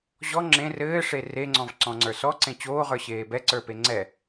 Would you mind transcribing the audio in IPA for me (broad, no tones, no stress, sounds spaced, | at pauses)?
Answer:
ʑ ɔ ŋ͡ǁ ẽ r ɘː ʂ e r e ŋ͡ǀ ɔ̃ v ǀ ɔ̃ ŋ͡ǀ ə˞ s ɔ ǀ ẽ t͡ɕ oː ʁ ə˞ ɕ eː b ɛ ǀ ə˞ p e ŋ͡ǀ ɛ